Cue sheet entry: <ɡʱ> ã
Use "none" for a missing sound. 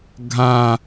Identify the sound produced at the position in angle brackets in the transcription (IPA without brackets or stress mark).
ɡʱ